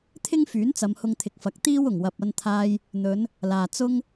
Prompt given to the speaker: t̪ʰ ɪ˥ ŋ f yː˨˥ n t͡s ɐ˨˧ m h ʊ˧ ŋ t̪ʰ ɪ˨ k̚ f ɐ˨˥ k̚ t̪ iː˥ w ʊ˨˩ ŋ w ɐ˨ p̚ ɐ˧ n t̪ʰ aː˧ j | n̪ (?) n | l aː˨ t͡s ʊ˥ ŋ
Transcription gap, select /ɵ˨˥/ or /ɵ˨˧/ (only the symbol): ɵ˨˧